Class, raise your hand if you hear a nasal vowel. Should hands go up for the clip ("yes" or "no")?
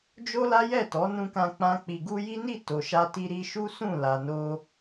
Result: yes